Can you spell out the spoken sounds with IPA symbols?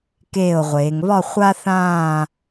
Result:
keː˧˩o̯ʁʷeː˩˧ŋβɒ˥˧ χʷa˧ θãː˥˧

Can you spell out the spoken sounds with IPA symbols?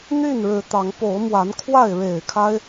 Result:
n̪y˥˨nɻɻ̩˨˦t̪ɑ˨˦ŋ po˨˦ʊ̯mwa˨˦nkʰwa˥˨ɪ̯ ɻe˨˩ɪ̯kʰa˦ɪ̯

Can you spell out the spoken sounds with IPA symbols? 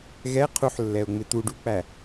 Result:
ɣɛ qʰuħlːɛʊ̯ŋ͡mɪ t̪uɖuk͡pæ

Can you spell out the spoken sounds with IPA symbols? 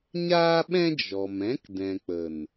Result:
ɲaː˦ɓɛ̃˦ d͡ʒɔ˨m ɛ̃˨˦kdɛ̃˨k͡pə˨n

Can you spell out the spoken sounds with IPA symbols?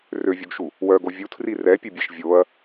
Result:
røvʲoɡʃu | wœɡo vʲutʰri rɛpʲøbʲeʃ vʲoɐ̯

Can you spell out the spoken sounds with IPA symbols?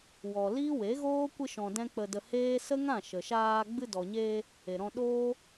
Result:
wɔ˨ liː˦we˨˦ɣoː˦ kʷɨ˧ʃɔ̃˨ dɛ̃˦k͡pə˧də˧ heː˦ sə˦ŋã˦˨ ʃə˨ʃaː˧ ɡ͡bɨ˧dɔ˨ɲeː˧ | e˨ɾɔ̃˧ ɗoː˦

